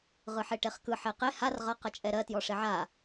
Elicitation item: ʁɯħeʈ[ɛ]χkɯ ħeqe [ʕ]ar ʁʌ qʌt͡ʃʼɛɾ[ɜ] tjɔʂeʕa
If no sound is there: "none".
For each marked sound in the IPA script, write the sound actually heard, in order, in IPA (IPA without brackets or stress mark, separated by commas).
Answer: e, h, ɜ